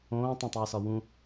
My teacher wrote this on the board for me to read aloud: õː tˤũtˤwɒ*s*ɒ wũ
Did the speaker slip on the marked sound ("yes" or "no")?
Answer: no